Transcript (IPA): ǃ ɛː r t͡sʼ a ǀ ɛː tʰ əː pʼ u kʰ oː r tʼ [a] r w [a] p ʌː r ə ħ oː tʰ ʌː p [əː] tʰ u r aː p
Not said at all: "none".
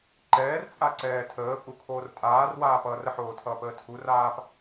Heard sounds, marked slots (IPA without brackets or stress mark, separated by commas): aː, aː, əː